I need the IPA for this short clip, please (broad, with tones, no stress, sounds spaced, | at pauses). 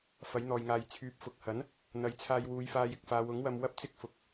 f ɐ˨˥ j n̪ ɔː˨ j ŋ aː˨˧ j t͡sʰ yː˨˥ p̚ f ʊ˨˥ k̚ h ɐ˨˥ n | n̪ ɐ˨˥ j t͡sʰ aː˧ j w uː˨˧ j f aː˧ j ɪ˨ k̚ f aː˨˧ w ʊ˨˥ ŋ w ɐ˧ m w ɐ˥ p̚ t͡s ɪ˥ k̚ f ʊ˨˥ k̚